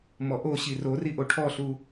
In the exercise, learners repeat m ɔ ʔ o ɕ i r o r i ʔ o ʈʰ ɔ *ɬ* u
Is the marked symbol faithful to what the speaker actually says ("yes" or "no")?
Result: yes